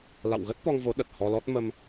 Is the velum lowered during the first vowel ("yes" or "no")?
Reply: no